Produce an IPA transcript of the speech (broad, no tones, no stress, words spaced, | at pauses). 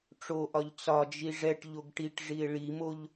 ʈ͡ʂoʔɒʎ t͡sɒd͡ʒi ʐɛʈ ʎoɡʈiʈʐie̯ ɭimoʎ